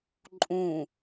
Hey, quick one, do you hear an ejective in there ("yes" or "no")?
yes